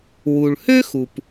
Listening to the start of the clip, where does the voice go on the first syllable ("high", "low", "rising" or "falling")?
low